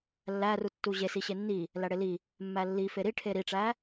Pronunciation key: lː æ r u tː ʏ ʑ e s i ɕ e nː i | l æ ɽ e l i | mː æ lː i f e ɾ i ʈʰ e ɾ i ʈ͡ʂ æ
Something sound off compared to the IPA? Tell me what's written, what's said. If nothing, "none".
ʏ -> u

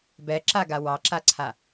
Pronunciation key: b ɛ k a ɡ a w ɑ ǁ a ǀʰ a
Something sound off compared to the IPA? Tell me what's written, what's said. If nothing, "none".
k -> ǁ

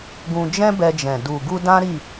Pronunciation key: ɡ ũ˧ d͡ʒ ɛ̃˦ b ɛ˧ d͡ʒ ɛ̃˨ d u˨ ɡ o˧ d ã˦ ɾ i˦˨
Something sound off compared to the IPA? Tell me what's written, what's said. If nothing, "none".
o˧ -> u˧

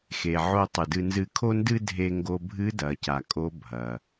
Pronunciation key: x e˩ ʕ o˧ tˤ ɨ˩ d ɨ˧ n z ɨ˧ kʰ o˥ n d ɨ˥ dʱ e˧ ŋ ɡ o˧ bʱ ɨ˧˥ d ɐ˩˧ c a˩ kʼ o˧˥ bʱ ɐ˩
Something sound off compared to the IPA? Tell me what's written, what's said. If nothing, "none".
none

